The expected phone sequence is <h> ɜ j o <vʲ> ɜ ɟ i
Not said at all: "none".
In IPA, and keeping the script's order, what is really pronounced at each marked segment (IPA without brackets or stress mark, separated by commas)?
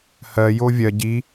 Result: h, vʲ